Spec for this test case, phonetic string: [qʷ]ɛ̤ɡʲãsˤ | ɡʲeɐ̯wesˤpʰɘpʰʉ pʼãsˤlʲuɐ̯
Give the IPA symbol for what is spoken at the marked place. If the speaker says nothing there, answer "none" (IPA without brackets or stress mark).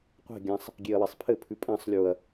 qʷ